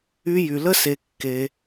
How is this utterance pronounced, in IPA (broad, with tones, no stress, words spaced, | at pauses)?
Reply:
y˧jy˨lə˦ se˧kːe˧